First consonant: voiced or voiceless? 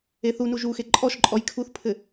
voiceless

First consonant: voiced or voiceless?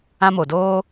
voiced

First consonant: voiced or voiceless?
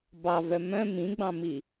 voiced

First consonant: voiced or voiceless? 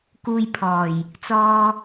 voiceless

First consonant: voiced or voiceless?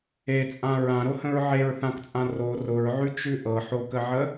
voiceless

